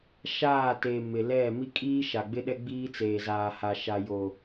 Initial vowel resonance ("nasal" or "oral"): oral